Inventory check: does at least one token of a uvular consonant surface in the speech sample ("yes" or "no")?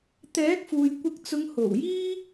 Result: no